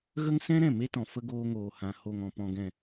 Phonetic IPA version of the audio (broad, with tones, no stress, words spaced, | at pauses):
ɣə˦ŋsɛ̃˦ ɾɛ̃˦˨me˦tɔ̃˨ fə˧ ɡoː˧ŋoː˨hã˨ ho˨ŋ ɔ̃˨ pɔ̃˨ɡɛ̃˨